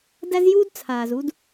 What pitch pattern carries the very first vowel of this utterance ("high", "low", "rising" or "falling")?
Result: high